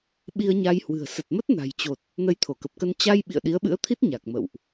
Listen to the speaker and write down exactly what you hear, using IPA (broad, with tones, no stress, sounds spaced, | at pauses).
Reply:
ɓ i˧ ə̯ ɲ a˧ j h w ɨ̤˨˩ ə̯ s ə˨˩ t̚ m ə˦˥ t̚ n a̤˨˩ j t͡ɕ o˨˩ t̚ | n ə˧ j t̪ʰ o˧˩ k ə˨˩ p̚ k ə˧ n t͡ɕ a˧ j ɓ ḭ˧˨ ə̯ ɗ i˨˦ ə̯ ɓ ɨ̰˧˥ ə̯ t̪ʰ i˦˥ t̚ ɲ a˨˩ k̚ m ə̰˧˨ w ʔ